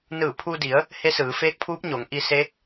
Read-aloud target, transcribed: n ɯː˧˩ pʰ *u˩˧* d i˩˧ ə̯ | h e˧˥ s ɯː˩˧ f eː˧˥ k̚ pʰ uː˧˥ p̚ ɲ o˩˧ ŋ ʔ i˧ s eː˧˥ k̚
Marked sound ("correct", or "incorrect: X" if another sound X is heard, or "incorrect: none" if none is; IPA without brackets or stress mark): incorrect: u˧